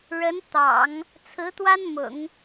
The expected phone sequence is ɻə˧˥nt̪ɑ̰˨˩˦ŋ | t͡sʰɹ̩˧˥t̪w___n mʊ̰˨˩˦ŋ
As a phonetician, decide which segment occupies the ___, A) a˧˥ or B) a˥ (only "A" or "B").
B